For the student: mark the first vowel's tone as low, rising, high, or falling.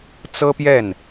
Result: high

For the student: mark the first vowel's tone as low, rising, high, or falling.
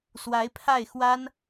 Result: rising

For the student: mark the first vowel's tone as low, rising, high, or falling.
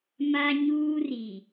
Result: high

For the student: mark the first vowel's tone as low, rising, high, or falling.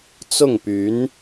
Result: falling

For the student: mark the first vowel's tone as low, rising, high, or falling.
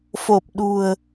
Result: low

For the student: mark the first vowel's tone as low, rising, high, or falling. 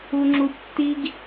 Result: high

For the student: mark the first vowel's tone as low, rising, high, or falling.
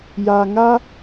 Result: low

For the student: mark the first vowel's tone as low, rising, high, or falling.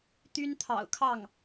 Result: high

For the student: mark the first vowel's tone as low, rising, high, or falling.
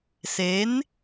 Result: rising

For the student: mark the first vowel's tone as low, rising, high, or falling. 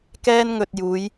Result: high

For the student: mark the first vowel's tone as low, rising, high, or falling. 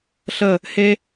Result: falling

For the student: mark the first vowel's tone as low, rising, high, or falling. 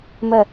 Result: falling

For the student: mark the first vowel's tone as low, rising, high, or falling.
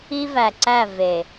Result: high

